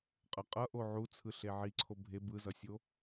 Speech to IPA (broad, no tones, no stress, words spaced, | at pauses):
qʼʌ qʼʌʔo ʕut͡sʰɯɬe ʕiǀʰo bʱe bɯzʌsʲo